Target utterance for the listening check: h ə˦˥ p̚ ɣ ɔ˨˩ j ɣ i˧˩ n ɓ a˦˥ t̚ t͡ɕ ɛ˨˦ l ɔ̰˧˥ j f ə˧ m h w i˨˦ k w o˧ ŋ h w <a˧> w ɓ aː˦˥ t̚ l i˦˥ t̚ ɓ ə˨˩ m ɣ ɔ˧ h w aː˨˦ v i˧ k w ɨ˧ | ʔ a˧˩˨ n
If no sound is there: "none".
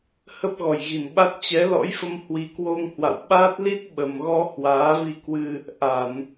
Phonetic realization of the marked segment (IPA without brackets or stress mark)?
a̰˧˨